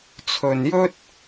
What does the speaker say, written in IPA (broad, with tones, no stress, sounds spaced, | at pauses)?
t͡sʰ ɵ˧ n j ɵ˥ t̚